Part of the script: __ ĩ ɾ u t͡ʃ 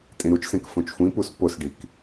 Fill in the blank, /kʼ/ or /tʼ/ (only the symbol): tʼ